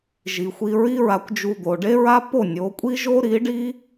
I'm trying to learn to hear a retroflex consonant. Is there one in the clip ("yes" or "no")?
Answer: yes